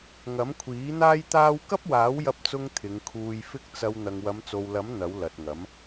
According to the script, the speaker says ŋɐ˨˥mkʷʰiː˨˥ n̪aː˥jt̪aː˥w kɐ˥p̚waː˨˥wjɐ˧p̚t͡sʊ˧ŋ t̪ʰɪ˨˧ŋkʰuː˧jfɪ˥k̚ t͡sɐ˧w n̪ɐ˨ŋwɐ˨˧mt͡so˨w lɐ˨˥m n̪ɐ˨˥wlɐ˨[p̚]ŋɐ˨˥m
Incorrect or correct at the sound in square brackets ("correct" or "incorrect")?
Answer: incorrect